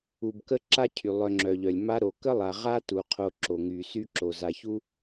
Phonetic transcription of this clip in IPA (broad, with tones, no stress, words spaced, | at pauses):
u˨bkə˦ ǁa˦cʰy˩ lˠœ˨ŋ͡ǁœ˩ʎœ˩lʲ ma˦ɾo˩ kə˥lˠa˨ ʁa˥tu˩ qʰo˨ ǁo˩ ŋy˩sy˦ ǁo˩za˨çu˥